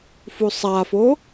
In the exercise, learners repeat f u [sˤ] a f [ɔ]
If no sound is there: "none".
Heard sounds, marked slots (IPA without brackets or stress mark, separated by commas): sˤ, o